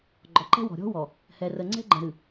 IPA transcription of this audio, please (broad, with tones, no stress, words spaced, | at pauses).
ɡ͡ǃɔ˨ǃɛ̤˦wɔ̤˨ ɾʲɔ̤˦wɔ˨ | hɛ˨rə˨ŋ͡ǀɛ̤˦ ɡ͡ǃə̃˨ɾɨ˨